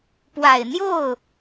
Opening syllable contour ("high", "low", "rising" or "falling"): low